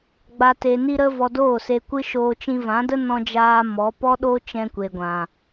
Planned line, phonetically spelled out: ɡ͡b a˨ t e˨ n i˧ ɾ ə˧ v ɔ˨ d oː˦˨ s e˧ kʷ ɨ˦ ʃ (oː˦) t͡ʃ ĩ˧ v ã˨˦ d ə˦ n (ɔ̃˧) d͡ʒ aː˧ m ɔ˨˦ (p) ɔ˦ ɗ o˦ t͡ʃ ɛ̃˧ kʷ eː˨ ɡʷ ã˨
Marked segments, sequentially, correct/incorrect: incorrect: oː˧, correct, correct

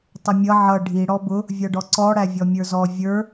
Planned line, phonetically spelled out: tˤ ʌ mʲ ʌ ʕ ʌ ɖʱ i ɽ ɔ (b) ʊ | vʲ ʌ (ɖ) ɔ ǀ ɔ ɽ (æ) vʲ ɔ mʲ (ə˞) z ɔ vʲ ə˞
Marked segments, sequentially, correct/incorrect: correct, correct, correct, correct

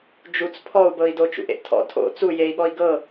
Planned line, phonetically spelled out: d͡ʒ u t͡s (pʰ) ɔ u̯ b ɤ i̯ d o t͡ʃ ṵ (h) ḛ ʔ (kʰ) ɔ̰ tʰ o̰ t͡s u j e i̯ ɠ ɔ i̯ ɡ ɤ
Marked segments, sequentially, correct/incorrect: correct, incorrect: ʔ, incorrect: tʰ

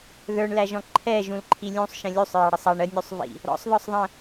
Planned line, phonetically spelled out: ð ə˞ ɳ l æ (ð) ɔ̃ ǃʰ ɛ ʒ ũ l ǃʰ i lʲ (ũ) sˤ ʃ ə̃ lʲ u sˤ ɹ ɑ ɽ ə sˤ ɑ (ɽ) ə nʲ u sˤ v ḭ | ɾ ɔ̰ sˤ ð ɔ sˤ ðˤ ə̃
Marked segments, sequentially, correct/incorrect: incorrect: ʒ, correct, incorrect: ɳ

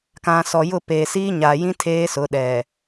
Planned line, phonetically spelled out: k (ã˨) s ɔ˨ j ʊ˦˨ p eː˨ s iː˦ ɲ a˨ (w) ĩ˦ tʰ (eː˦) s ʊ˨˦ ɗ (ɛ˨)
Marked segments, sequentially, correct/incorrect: correct, incorrect: j, correct, correct

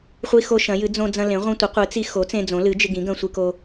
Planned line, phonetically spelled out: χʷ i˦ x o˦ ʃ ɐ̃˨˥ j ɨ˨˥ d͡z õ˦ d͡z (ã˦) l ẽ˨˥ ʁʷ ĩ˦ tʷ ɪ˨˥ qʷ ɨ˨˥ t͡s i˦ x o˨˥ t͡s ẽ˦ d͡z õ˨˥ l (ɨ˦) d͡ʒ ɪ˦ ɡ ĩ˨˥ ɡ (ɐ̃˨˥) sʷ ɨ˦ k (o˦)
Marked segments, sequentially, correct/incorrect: incorrect: ɐ̃˦, incorrect: ɨ˨˥, incorrect: ɐ̃˦, correct

